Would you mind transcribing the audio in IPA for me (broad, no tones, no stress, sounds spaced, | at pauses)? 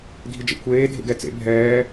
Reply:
dʱ i d͡ʒ ɛ̰ kʷʰ eː dʱ ḛ ɡ ɛ t͡s ḛ bʱ ɛː